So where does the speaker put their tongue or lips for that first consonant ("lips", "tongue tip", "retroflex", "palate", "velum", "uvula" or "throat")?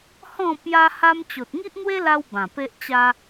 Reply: throat